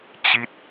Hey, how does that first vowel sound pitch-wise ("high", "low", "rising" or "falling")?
falling